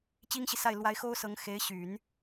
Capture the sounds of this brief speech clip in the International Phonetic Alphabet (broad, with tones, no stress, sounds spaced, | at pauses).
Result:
t͡ɕ i˥ ŋ ɕ i˨ s a˥˩ ɪ̯ l w a˥ ɪ̯ x o˥ ʊ̯ s ɤ˧˥ ŋ x e˧˥ ɪ̯ ɕ y˨˩˦ n